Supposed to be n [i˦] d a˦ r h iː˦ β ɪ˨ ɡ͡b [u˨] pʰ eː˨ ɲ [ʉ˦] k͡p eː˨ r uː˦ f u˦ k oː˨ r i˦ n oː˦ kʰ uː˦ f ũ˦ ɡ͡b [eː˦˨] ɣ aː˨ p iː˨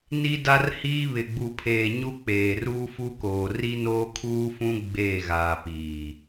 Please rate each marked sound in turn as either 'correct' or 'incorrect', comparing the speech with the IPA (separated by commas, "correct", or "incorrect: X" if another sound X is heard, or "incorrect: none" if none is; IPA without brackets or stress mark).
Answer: correct, correct, incorrect: u˦, correct